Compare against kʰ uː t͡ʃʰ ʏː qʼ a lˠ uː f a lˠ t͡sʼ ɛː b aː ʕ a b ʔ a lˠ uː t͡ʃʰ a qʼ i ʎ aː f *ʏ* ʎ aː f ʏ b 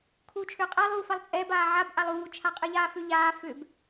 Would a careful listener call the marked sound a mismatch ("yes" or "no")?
no